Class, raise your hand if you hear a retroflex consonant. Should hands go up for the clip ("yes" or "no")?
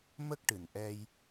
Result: yes